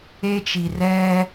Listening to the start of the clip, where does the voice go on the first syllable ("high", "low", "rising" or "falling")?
high